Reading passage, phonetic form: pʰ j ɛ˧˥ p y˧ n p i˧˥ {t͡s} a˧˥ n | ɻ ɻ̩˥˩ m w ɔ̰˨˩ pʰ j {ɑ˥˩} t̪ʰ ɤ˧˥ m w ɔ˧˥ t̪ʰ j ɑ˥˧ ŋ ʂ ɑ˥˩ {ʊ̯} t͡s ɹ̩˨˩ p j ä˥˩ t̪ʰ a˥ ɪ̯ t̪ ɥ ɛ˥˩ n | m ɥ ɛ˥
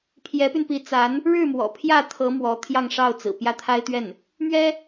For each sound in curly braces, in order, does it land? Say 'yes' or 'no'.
yes, no, yes

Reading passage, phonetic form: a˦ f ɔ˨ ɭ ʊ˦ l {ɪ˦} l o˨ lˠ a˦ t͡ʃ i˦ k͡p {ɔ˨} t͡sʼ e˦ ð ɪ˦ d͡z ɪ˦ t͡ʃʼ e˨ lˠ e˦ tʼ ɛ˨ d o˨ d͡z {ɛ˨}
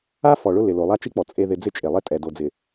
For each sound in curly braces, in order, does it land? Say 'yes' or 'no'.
no, yes, no

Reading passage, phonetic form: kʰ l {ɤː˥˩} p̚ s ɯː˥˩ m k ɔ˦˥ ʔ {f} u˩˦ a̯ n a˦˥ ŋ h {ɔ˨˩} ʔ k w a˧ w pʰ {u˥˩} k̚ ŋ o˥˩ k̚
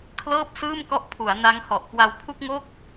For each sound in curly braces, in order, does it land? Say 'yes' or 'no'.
yes, no, yes, yes

